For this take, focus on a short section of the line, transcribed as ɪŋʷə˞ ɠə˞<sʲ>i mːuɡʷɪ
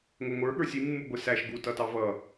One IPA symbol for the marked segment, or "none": sʲ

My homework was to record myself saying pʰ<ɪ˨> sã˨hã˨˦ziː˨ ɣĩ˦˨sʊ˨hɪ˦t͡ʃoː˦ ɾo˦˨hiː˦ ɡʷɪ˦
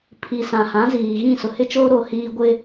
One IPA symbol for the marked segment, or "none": i˨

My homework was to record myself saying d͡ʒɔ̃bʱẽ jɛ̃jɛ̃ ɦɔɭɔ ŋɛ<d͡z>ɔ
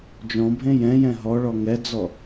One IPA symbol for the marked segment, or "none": d͡z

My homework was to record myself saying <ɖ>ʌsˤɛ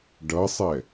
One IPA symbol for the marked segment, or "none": ɖ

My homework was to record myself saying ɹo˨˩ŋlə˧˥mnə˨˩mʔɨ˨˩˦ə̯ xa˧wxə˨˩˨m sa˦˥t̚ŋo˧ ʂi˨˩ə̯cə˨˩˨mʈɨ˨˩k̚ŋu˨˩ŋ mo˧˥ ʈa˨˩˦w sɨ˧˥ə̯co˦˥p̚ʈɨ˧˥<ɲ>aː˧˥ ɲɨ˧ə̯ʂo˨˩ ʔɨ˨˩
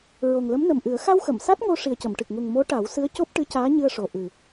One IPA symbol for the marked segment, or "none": c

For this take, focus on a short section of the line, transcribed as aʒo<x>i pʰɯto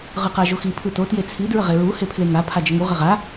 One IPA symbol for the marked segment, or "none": x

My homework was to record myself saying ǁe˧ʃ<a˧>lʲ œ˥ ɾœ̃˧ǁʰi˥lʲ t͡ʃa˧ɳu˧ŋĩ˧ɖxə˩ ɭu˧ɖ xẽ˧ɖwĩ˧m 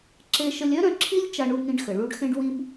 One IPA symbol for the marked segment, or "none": ə˧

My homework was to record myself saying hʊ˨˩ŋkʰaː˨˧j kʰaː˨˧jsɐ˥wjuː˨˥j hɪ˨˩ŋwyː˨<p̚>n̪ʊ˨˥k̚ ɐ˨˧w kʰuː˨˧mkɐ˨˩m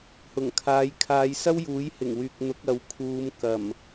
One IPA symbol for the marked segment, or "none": k̚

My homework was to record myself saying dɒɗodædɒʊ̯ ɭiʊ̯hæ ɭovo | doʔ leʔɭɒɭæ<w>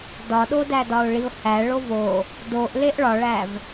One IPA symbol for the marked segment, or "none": v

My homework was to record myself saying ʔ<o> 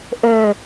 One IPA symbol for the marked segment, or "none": ɵ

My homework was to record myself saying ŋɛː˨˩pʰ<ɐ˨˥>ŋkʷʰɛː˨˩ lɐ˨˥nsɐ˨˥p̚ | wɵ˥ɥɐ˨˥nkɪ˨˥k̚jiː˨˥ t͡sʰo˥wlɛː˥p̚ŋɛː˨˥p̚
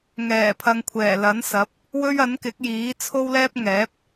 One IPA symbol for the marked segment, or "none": ɐ˨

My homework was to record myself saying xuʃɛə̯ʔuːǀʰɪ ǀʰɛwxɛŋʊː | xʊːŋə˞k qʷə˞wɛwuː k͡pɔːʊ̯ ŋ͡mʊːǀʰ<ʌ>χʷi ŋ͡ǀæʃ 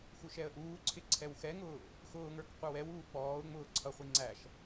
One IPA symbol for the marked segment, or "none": ʌ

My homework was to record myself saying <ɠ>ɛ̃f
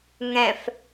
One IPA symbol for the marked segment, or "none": ŋ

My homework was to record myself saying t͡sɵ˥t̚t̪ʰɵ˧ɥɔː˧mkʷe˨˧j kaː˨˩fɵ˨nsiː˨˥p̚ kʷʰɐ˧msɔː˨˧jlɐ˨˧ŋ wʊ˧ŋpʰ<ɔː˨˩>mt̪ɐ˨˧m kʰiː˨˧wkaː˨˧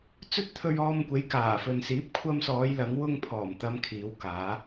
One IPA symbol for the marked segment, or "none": ɔː˨˩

